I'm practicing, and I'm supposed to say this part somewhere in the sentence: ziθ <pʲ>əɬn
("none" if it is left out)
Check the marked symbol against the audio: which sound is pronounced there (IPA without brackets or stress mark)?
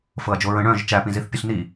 pʲ